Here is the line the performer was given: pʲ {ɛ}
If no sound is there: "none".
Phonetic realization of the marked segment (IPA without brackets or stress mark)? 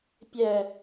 ɛ